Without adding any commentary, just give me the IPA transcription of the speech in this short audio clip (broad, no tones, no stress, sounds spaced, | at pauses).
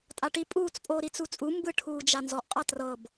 tʼ a ʈ i pʼ uː t͡s pʼ oː ɾ i t͡s u t͡sʼ u m b ɯ ʈʰ uː d͡ʒ a n z ɔ ʔ qʼ a t r ɤ b